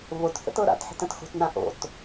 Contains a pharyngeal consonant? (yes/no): yes